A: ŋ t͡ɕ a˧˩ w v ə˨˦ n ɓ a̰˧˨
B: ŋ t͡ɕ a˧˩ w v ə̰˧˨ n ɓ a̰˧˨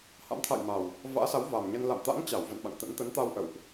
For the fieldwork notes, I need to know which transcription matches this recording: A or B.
B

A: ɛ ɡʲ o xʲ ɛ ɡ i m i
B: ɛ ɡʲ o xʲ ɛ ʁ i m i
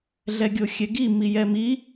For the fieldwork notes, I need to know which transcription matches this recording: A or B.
A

